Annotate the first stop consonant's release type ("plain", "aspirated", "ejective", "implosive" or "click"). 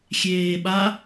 implosive